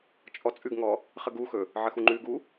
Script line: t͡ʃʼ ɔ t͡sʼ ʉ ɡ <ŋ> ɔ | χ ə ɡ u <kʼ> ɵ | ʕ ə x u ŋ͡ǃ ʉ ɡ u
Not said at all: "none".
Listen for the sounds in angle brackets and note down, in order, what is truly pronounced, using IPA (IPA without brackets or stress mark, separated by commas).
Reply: ŋ, x